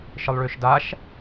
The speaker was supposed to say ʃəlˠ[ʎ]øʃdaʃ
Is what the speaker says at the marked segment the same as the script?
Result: no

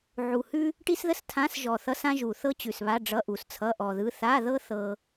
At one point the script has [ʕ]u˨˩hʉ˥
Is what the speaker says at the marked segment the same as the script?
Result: yes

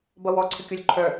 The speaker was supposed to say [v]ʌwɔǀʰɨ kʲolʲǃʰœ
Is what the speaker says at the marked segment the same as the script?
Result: no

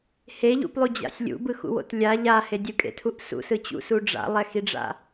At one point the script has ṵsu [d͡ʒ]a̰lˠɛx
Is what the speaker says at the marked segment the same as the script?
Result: no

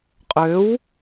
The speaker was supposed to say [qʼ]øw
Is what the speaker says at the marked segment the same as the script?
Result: yes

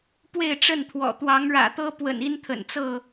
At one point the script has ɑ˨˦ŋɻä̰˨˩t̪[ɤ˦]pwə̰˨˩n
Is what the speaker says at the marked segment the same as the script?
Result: yes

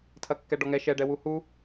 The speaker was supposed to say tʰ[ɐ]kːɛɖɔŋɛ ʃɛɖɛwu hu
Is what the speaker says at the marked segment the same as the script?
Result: yes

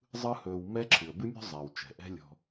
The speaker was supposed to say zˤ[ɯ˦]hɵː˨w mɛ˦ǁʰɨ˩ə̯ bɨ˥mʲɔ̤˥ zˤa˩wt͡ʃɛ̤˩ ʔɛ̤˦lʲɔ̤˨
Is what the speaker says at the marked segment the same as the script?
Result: yes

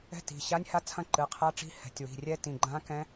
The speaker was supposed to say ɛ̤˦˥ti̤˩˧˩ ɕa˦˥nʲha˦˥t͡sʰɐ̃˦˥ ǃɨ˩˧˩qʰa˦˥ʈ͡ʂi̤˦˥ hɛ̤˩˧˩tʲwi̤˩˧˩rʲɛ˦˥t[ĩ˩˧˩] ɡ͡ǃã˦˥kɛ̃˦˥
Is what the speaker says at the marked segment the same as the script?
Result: yes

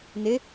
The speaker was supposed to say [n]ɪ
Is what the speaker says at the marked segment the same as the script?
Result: yes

